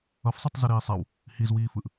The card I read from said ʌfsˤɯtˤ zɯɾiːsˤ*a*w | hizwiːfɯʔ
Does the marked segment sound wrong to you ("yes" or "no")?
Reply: no